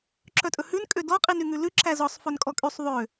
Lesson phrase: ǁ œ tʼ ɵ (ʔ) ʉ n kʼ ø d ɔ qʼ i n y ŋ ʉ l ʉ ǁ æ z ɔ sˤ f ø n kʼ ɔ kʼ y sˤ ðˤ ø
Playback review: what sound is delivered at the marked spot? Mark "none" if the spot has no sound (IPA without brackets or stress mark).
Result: h